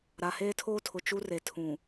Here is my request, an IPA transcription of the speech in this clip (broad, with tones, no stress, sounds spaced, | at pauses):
ɾ a˨ h eː˦ tʰ oː˦ tʰ ʊ˨ t͡ʃ u˦ r e˨ tʰ ũ˨